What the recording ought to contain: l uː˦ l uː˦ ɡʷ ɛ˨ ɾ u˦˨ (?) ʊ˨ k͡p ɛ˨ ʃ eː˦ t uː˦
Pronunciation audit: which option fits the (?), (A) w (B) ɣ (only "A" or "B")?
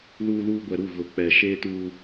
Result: B